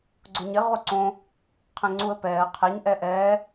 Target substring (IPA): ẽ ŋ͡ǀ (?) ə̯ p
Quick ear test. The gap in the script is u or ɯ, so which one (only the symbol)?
u